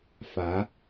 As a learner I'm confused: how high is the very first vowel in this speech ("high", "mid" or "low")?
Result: low